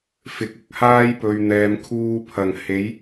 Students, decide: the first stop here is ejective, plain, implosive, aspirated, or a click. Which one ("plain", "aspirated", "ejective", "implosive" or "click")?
plain